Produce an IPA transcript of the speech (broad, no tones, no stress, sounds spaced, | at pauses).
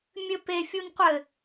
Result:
mʲ ɘ p e fʲ u n qʷ ɘ